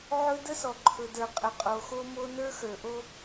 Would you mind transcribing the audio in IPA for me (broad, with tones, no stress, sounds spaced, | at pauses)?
ʕ ɵ˦ d ə˦ s ɔ˨ ǃʰ ɵ˨ d ə˞˨ qʼ ə˨ qʼ o˨ x o˦ m o˦ n ə˞˦ x ə˞˨ ʔ o˦